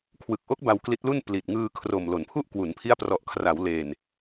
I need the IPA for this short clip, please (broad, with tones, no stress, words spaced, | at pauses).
kʰwɯ˨˩k̚ʔo˦˥k̚ ba˧wkli˦˥t̚lu˥˩n pli˨˩t̚ŋɯː˧ kʰro˨˩mlo˩˦npʰu˥˩ʔ kwu˩˦npʰi˦˥a̯prɔ˨˩ʔkʰra˩˦w leː˨˩n